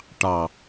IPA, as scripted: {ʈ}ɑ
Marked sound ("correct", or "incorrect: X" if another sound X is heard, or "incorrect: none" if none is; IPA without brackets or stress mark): correct